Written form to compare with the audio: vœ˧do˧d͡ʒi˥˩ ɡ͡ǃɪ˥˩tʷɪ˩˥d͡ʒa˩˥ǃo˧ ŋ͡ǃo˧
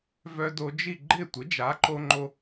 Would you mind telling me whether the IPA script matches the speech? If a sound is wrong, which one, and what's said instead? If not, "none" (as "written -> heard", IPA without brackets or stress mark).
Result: none